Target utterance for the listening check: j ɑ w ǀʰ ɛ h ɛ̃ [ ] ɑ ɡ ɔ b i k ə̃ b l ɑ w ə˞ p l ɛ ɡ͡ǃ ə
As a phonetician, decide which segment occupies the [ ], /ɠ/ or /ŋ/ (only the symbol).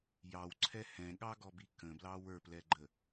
ɠ